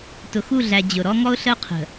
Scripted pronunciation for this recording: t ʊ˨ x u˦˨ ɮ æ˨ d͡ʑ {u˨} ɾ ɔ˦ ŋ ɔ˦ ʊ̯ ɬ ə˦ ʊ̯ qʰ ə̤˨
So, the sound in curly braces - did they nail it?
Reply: no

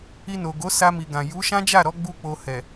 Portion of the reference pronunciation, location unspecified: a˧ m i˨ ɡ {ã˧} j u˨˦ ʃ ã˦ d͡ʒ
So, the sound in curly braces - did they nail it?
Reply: no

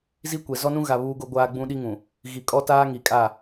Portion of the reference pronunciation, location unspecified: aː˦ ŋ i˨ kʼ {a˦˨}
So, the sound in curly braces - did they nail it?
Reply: yes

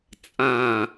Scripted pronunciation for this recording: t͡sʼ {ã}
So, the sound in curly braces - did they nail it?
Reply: yes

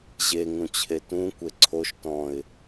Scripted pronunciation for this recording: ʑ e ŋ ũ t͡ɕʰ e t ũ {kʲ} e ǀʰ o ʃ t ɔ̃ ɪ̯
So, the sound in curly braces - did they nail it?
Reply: no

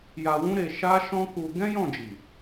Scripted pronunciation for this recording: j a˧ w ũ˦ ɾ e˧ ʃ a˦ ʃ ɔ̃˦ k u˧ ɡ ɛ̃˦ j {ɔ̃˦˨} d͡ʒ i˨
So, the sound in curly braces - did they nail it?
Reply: yes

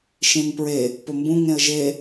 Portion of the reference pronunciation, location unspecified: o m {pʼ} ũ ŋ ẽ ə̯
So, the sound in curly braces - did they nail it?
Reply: no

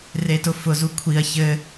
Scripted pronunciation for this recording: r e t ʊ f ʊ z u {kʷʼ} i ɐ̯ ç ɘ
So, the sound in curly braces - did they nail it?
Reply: no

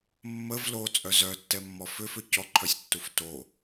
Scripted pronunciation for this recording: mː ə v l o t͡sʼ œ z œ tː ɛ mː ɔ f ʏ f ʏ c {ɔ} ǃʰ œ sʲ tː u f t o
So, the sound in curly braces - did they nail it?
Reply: yes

